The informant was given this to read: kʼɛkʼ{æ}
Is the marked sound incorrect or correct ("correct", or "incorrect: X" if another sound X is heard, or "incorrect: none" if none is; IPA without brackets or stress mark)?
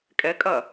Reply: incorrect: ɐ